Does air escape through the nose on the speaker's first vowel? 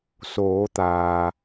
no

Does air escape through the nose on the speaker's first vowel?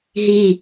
no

